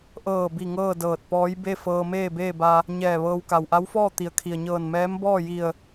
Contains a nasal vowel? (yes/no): no